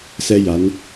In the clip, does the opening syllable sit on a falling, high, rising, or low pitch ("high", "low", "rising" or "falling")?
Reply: high